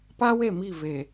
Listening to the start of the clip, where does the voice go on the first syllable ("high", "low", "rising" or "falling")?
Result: high